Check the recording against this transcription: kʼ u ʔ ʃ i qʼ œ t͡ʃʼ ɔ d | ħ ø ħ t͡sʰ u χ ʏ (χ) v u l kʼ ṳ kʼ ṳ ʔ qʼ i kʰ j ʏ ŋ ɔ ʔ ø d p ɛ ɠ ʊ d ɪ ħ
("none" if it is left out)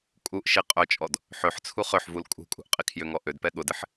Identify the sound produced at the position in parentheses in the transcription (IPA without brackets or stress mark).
ħ